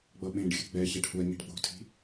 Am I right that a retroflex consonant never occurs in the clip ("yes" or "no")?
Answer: no